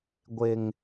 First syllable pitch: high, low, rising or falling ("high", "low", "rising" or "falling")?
low